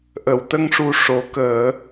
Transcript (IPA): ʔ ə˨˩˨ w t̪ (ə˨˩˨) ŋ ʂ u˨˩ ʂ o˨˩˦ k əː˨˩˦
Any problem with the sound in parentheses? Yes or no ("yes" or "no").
yes